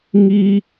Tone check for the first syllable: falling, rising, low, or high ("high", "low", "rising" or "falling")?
high